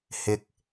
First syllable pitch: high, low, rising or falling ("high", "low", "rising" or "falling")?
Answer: low